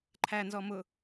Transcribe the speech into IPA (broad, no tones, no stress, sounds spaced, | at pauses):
ǃʰ æ n z ɔ m ʊ